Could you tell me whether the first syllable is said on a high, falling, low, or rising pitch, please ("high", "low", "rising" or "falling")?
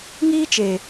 high